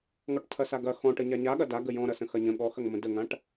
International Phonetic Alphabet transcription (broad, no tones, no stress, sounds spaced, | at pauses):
ŋ ɔ ʈ tʰ ɐ s a ɡ ɐ x ɔ̃ ʈ ə ɲ a ɲ a ɠ ɐ d a ɡ ə j ɔ̃ ɾ ɐ s ə̃ x ɐ ɲ ə̃ ɠ ɔ x ɐ ŋ m ə̃ d ə ŋ ã ʈ